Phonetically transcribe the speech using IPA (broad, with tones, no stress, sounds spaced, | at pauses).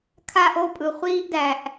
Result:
kʰ a˧ ʔ o˦˨ pʼ ɯ˨ χʷ iː˧ ʔ d æ˨ ʔ